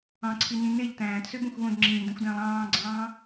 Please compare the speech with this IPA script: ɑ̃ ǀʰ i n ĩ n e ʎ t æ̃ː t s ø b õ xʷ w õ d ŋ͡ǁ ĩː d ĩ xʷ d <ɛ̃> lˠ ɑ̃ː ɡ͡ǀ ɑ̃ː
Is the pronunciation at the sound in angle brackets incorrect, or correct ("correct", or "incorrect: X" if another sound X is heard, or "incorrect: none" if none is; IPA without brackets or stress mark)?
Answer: incorrect: æ̃